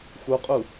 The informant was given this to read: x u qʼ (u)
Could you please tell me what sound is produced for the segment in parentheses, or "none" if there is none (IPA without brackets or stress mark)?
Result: u